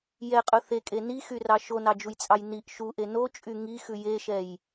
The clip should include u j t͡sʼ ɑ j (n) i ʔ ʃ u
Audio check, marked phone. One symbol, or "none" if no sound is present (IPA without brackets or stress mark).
n